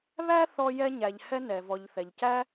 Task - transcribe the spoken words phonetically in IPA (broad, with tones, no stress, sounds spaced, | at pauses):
β æ˦ θ ɔ˧ j ɛ˧ ɲ æ˨ ʎ h ɛ˧ n ɛ˨ v ɔ˨ ʎ θ ɛ˨ ʎ c æ˦